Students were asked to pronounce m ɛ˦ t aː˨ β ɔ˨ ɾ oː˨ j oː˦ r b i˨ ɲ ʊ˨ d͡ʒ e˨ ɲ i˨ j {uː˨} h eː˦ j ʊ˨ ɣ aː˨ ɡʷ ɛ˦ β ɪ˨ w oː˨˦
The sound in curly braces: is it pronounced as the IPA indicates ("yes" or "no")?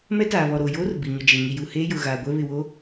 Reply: no